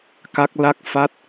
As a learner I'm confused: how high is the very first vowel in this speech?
low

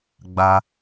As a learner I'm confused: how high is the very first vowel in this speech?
low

